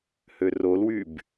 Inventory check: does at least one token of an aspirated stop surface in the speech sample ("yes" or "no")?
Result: no